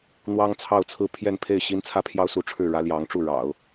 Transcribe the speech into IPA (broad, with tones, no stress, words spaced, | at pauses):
n̪wɑ˥ŋt͡sʰɑ˥˩ʊ̯t͡sʰɹ̩˥ pʰjɛ˥˧npʰe˥˩ɪ̯ ɕi˥nt͡sʰä˥pʰjɑ˥ʊ̯su˧˥ ʈ͡ʂʰɻ̩˥˩ɻä˥ljɑ˧˥ŋʈ͡ʂu˥˩ ɻɑ̰˨˩˦ʊ̯